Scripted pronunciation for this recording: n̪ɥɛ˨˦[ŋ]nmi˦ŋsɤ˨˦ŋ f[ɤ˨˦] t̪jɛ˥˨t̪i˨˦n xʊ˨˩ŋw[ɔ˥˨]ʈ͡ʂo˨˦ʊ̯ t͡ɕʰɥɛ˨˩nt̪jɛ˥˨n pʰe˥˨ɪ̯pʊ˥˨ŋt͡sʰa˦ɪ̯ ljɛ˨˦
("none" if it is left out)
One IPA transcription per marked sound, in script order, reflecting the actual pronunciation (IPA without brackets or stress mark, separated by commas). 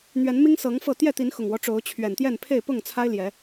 none, ɤ˥˨, ɔ˦